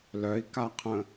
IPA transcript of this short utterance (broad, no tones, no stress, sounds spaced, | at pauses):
l œ i̯ k a qʰ ə̃